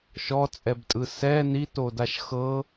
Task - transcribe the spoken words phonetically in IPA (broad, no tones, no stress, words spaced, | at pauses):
ʃɔt͡sʼɛbtʼɯ sɛ nitodaʃ xɤ